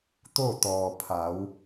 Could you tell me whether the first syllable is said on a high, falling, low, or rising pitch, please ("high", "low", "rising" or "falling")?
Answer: falling